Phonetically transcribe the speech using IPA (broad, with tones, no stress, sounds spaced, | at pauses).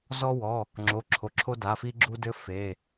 z ɔ˦ w ɔ˩˧˩ | ŋ͡ǁ o˩˧˩ ǁʰ o˩˧˩ ǁʰ o˦ d a˩˧˩ f i˦ ɡ͡ǁ u˦ d ɘ˦ f e˩˧˩